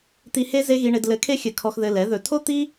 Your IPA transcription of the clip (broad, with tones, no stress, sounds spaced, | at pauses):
t̪ i˧ h e˦ z e˦ ɣ i˧ ɳ e˧ d l ɘ˨˦ kʰ e˦ xʲ ɘ˨ kʰ ɔ˧ x ð ɘ˧ l ɛ˨˦ ð ɵ˨ tʰ o˦ t̪ i˦